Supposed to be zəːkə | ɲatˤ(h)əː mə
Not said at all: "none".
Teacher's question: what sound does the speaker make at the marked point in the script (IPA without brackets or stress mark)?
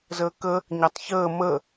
ç